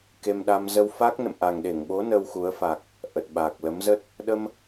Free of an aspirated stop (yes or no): yes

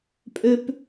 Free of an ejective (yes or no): no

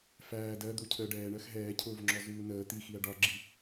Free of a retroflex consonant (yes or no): no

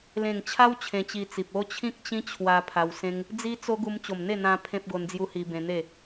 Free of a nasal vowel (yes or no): no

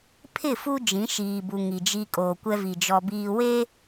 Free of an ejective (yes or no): no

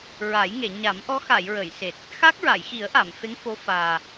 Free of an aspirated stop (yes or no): yes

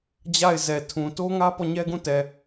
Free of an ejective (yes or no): yes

